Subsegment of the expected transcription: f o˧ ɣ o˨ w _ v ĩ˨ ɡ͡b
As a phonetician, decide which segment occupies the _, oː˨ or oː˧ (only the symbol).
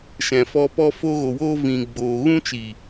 oː˧